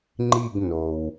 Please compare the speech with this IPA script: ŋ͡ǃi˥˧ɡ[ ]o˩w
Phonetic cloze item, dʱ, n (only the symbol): n